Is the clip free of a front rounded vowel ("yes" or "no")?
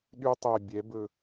no